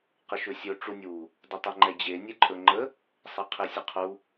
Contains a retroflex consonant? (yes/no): yes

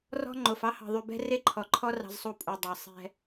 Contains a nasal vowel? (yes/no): no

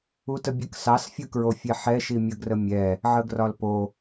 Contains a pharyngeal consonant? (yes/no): yes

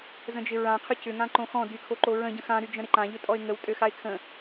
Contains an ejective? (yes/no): yes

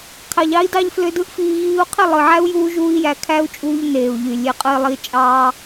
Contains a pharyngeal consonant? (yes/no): yes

